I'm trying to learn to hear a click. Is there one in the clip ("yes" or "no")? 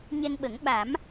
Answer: no